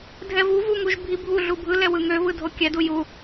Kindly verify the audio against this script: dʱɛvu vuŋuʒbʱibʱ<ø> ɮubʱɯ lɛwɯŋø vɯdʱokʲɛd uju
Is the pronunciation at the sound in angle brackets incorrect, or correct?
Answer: incorrect